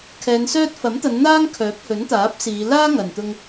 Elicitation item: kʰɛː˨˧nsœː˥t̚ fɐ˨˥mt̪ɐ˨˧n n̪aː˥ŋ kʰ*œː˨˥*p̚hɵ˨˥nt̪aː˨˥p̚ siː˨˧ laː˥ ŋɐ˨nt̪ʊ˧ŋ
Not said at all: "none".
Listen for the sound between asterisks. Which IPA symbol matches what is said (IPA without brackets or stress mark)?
œː˨˥